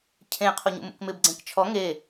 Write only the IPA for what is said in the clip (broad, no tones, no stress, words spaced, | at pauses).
cʰẽ qʰoɲṵmṵkmɪb ɡ͡ǀẽkt͡ʃʰɔ ŋe